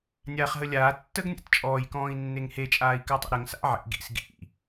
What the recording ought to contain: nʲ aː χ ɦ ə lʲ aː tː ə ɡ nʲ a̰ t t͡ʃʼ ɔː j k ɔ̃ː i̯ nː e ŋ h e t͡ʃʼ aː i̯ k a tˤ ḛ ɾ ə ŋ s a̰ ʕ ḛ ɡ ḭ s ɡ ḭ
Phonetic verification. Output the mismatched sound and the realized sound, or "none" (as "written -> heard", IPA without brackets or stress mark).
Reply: none